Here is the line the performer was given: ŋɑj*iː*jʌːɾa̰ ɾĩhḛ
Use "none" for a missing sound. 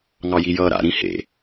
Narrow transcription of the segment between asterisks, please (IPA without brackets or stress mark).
i